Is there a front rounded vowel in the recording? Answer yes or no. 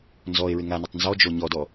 no